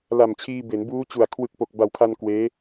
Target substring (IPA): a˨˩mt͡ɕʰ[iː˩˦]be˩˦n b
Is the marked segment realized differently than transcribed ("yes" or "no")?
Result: yes